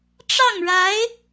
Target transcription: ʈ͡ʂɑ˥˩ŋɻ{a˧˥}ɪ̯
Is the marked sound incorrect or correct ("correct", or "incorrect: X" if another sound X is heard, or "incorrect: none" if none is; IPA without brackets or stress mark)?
correct